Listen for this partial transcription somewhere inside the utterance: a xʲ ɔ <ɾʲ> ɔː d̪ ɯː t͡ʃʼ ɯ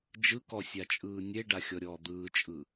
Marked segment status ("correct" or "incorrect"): correct